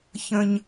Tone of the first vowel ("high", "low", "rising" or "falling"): high